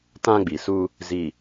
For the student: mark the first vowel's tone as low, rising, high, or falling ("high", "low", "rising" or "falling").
high